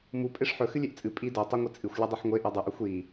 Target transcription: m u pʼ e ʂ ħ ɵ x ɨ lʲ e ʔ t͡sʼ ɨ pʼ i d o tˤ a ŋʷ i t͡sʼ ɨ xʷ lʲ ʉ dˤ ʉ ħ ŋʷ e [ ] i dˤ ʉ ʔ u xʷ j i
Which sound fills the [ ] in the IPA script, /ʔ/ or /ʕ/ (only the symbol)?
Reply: ʔ